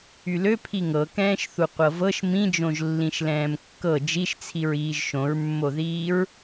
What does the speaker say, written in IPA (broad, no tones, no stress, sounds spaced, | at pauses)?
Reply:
y l ø pʰ i ŋ ɤ k ɛ̃ː ʃ θ u qʷ ɤ v ɤ ʃ m ĩ d͡ʒ õ ʒ lː ĩ ʃ l ɛ̃ː m kː ɤ d͡ʒ i ʃ t͡sʰ i ɹ iː ʒ ʃ õ ɹ mː o ð iː ɹ